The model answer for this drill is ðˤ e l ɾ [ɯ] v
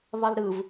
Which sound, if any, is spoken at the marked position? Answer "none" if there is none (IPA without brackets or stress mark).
ɯ